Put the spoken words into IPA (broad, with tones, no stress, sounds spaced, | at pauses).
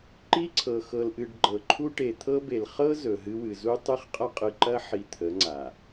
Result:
ǃ i˦ ǀʰ ɤ˨ x ɤ˨ l ʔ ɨ˨ ɖ ɡ͡ǃ ɤ˨ ǃʰ u˦ ʈ e˨ t̪ʰ ɤ˦ b e˨ l χ ɤ˦ z ɵ˨ ɦ ɨ˦ w ɨ˨ z u˦ tˤ ɨ˦ χ qʼ ɐ˦ qʼ ɨ˨ ǃ ɐ˦ ħ i˨ t̪ʰ ə˨˦ ŋ͡ǀ a˨